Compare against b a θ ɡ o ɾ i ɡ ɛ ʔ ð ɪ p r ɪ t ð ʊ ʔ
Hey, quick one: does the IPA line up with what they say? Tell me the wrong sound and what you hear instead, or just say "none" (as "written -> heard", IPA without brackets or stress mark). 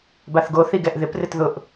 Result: ɾ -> θ